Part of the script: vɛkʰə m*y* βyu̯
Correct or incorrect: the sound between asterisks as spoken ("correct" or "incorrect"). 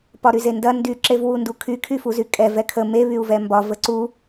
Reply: incorrect